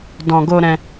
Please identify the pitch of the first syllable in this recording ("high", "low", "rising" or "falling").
low